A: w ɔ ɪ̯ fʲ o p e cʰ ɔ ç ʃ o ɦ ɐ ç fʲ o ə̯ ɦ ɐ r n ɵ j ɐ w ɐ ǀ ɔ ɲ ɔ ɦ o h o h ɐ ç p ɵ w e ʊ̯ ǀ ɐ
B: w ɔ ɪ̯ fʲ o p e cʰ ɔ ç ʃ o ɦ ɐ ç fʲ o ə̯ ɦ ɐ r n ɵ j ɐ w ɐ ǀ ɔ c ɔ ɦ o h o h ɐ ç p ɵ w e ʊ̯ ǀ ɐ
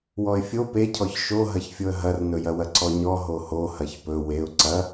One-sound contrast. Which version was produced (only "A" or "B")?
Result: A